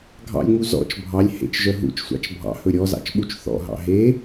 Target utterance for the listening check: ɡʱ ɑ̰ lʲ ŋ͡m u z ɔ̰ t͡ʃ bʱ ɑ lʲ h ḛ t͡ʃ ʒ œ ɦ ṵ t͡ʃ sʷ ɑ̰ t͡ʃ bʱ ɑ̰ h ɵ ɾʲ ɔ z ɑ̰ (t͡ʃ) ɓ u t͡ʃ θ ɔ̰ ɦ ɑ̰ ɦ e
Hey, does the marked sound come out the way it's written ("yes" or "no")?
yes